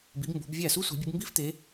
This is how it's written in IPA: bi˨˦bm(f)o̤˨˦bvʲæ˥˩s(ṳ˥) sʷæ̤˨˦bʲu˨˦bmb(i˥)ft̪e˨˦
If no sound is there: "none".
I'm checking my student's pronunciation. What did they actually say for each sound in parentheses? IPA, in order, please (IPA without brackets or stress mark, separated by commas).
b, u˥, i˥